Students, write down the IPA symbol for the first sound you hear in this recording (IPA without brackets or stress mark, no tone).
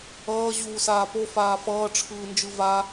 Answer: ʌː